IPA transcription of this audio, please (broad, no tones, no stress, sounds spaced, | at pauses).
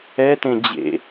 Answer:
ɛ t ẽ d͡ʑ ḛ